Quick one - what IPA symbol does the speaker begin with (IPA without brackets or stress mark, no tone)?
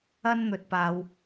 ɐ